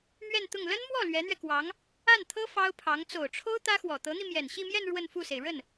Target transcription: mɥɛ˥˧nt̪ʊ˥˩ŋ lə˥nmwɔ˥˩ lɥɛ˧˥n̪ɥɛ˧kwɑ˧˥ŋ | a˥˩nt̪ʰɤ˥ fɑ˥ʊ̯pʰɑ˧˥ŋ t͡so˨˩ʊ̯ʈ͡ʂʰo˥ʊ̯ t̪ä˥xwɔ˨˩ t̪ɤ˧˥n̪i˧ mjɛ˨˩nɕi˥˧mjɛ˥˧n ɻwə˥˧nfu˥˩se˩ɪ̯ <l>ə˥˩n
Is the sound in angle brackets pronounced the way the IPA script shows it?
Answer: no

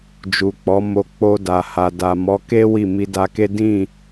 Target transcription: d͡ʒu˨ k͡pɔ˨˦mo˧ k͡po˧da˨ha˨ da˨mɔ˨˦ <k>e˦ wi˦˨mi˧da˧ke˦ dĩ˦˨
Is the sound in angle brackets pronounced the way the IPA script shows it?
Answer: yes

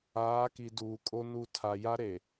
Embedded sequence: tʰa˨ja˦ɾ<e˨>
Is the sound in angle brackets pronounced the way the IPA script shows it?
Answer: yes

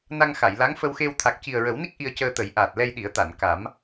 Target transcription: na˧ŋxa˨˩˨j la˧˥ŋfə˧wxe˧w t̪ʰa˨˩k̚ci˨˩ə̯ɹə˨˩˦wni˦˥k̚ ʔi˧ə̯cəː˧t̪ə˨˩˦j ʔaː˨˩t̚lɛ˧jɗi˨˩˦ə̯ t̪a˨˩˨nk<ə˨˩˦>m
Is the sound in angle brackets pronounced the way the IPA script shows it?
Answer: no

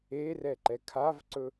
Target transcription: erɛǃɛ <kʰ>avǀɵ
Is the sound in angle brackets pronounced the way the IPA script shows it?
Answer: yes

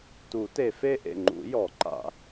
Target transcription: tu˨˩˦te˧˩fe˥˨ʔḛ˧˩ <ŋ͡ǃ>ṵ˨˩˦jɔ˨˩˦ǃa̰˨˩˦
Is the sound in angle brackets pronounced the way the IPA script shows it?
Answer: yes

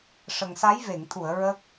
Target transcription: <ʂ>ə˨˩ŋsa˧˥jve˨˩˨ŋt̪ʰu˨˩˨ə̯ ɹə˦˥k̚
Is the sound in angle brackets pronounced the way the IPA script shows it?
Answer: yes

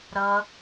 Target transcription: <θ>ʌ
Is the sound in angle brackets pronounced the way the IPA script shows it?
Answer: no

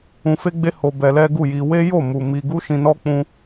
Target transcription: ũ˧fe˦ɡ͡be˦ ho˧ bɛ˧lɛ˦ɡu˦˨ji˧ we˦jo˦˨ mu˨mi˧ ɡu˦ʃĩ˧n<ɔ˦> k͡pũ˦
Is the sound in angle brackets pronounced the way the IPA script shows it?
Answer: yes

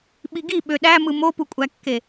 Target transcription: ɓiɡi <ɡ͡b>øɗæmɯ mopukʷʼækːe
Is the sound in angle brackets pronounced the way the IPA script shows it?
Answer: no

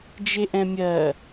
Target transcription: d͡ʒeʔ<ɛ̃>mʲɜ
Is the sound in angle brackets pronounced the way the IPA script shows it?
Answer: yes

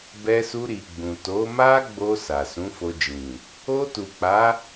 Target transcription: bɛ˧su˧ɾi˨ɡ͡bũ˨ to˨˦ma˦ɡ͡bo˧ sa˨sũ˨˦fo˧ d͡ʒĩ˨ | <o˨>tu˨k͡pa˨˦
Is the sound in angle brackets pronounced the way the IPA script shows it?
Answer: no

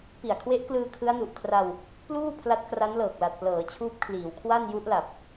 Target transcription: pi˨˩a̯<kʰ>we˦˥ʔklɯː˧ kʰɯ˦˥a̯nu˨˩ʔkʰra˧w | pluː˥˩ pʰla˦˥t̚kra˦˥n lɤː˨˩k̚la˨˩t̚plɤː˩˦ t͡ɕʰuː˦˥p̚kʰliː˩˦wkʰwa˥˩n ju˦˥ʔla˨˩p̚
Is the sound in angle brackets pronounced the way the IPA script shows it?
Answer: yes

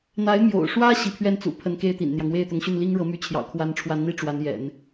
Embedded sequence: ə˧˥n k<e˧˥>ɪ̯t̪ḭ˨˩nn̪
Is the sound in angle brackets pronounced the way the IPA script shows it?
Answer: no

